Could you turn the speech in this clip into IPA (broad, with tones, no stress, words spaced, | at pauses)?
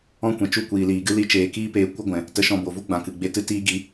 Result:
ɔ̃˦kʷɛ̃˨t͡ʃu˦˨ kʷiː˨liː˨ɡɨ˦ li˧ t͡ʃeː˨kiː˦peː˧ kʷə˦ɡʷɛ̃˨ | tə˧ʃɔ̃˧bo˨vu˦ ɡ͡bã˨kɨ˨ɡ͡be˧ tɨ˧ tiː˧ɡi˨˦